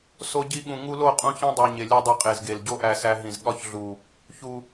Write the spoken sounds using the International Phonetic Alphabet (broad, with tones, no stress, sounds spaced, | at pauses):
s o˧ ɟ i˧ ɠ ũ˨ ŋ u˧ l o˦˨ qʼ ũ˧ ç ĩ˦ dˤ u˨ ɲ e˨ lʲ u˧ dˤ e˧ qʼ e˨ z ɡ e˨ l ɟ o˦ ʔ æ˧ s æ˧ ɦ ĩ˨ z ɠ ɒ˦ ç ɮ u˨ | ç u˨